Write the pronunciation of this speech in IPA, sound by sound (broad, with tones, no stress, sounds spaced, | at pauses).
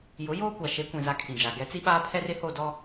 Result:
j ʊ˨˦ j oː˦ kʷ a˨ ʃ e˨˦ kʷ ĩ˨ z a˨ kʰ ĩ˨ d͡ʒ a˨ ɡ ɛ˨˦ t͡s i˦ ɓ aː˦ pʰ ɛ˦ r ɪ˨˦ h o˦˨ d ɔ˦